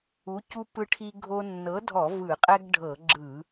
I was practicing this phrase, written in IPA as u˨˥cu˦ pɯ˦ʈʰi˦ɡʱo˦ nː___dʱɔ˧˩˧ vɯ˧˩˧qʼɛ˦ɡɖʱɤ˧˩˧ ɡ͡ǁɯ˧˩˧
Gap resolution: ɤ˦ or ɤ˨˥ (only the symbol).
ɤ˨˥